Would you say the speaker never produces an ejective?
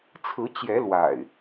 yes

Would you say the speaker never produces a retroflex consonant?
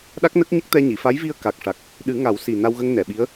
no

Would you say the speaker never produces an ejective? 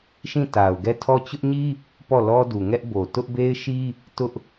yes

